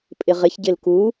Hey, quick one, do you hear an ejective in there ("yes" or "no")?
yes